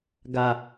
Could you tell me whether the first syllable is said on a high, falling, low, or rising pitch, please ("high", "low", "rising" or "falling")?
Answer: low